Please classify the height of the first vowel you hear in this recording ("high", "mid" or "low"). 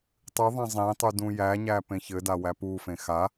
high